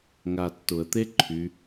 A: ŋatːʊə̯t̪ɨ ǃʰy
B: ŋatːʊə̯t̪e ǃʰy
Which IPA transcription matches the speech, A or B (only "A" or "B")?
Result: B